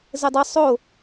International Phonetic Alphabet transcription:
zɘdˤɐ sˤo

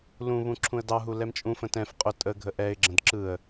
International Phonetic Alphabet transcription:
lũβũ ǁʰũə̯dɑɦu lɛmt͡ʃʼũfə̃ tɛ̃f qʼʊ tʼə ɡʱəʔɛɪ̯ɡ͡ǁə̃d ǁɯə̯

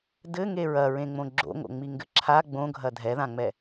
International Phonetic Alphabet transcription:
dɘŋe ɹɐɹẽŋ͡mõ ɡ͡ǁo̰ŋo̰ŋ͡miŋɡɘ ǁʰa ɡ͡bõɡʱɐ dʱɛðãŋ͡mɛ

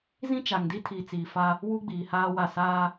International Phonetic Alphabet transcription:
zĩ˦t͡ʃa˨ŋ di˦tʰiː˨t͡siː˨fa˦ | wu˦ɡ͡biː˨haː˦wa˦˨ saː˦

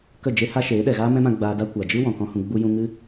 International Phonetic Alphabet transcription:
kə˦˨d͡ʒe˦ ha˦ʃeː˨˦ ɗɛ˨ɣaː˦mɛ̃˦mã˧ ɡ͡baː˧da˦ kʷa˨d͡ʒɨ˦ wɔ̃˨kɔ̃˦hũ˧ ɡ͡bu˧jũ˧ŋɨ˦

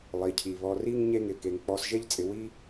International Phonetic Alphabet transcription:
lˠi˩cʰi˩βɔ˨ri˥ŋ ɲe˦ŋɪ˩ke˩ŋ k͡pɔ˨sʒe˦ʎ t͡sʼɪ˨wi˥

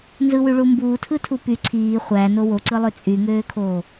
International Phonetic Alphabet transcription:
nzɯwyɭu mbuːtʰɯtʰu py ǀʰiː χʷæno woǀɯlˠø t͡sʼyŋøːkʰoː

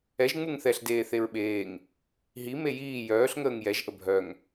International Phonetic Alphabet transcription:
ɛʒ ŋ͡muŋθɛɬ deːθeɹɓeːŋ | ɦi mejiː jœːɬ ŋəːŋjɛʒ ʔəbʱœŋ

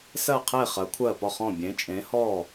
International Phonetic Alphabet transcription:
sɜ˥˨qʰe˥˨ χɜ˨˥kʷʰɜ˥˨pɔ˥˨χɔ̃˥˨ bʲẽ˨˥t͡ʃʼẽ˨˥hɔ˥˨

